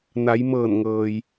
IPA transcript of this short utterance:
n a˩˧ j m ɤː˧˩ n ŋ ɤː˩ j

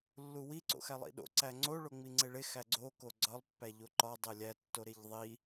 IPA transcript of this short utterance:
lː u w i ǀ o̰ x æ lˠ ḭ ɗ o̰ ǀ æ ŋ͡ǀ o ɭ o ŋ͡m i ŋ͡ǀ e ɭ e x æ ɡ͡ǀ o k o ɡ͡ǀ ɒ lˠ pː æ ʎ o ǃ ɒ dˤ e lʲ æ tː o ɾ e ʎ ðˤ i

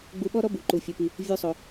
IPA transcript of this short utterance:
ɡ͡b u˧ ɓ ɔ˥ ɾ ɔ˥ b u˩ ǃ u˩ fʲ ɔ˩ p i˩ | vʲ u˧ sˤ o˩

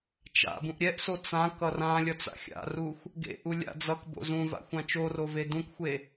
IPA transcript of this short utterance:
t͡ʃ a̰ b ũ ʔ ɾʲ ɛ ʔ s o t͡s ã k ʌ r ã lʲ ʌ t͡s a̰ xʲ a̰ r u xʷ | ɡ ḛ ʔ u lʲ a̰ d͡z ʌ k b o̰ z ũ v a̰ xʷ ã t͡ʃ o r o v e d ũ k xʷ e

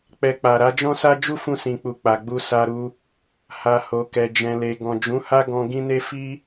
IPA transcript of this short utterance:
k͡p ɛ˧ k͡p a˨ ɾ a˨˦ d͡ʒ ɔ̃˦ s a˦ d͡ʒ u˦ f ũ˧ s ĩ˨ k͡p u˨ k͡p a˨ ɡ͡b u˧ s a˧ ɾ u˧ | h a˨ h o˨ k ɛ˨ d͡ʒ ɛ̃˨ l e˨ ɡ ɔ̃˨ d͡ʒ ũ˨˦ h a˦ ɡ ɔ̃˧ ɡ ĩ˦ n e˦ f i˦

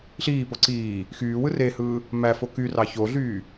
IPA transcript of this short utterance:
ɬ iː p o ǀ iː | x yː w ɯ r e h ɯː | m æ f o k y r ɑ ç o ɮ yː

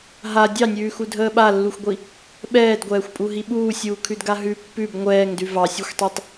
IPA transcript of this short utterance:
ɦ a dʲ ɑ nʲ ʉː x u dʱ əː ɓ a lː u xʷ ɡʷ i | ɓ ɛː d ɡʷ ɛː xʷ pʼ u ɦ i ɓ uː sʲ uː kʰ ʉ d ɡ a ɦ ʉ pː ʉ b ŋʷ ɛː ŋ d ʉ v ɑ sʲ o xʷ tˤ ɛ tˤ

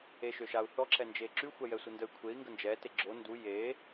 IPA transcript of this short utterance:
e ʃ ø ʃ a u̯ θ ɔ ǁ ɛ n d͡ʒ e ǁ y xʷ ɛ j ɛ sʷ ə n d ə y̯ kʷʰ e i̯ ŋ ɡ ə n d͡ʒ ɛ t e ɡ͡ǁ o n d u j e

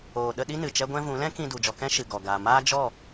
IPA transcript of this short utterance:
oː˨ ɗ ə˧ ɗ i˦ n ɨ˨ t͡ʃ ɛ˦ ɡʷ ɛ̃˦ v ũ˨˦ l ɛ̃˦ k ĩ˧ d u˨ d͡ʒ ɔ˧ k ɛ̃˦ ʃ ɨ˨ ɡ ɔ˨ ɡ aː˨ m aː˦ d͡ʒ ɔ˦˨

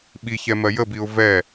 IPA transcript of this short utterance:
ɓ i ç ɛ m ɜ j ə b i ʊ̯ v ɛ

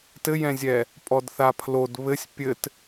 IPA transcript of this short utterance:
t ɘ j ɛ̃ zʲ ɛ | pʼ ɔ d θ a pʰ l o d β ɘ sʲ pʲ ɘ t

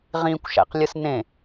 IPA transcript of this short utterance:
ʁ ĩ kʷ ʃ æ̰ q lʲ ɯ s n ẽ

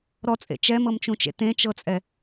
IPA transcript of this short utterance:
ɾ ɔ t͡sʼ ḛ t͡ʃ ɛ m ɤ m t͡ʃ ũ t͡ʃ ḛ t ẽ t͡ʃ ɤ t͡sʼ ɛ

